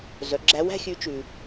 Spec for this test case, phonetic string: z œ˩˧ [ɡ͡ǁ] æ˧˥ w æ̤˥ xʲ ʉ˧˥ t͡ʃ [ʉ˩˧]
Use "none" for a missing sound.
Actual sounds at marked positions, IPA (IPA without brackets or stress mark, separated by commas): ɡ͡ǁ, ʉ˩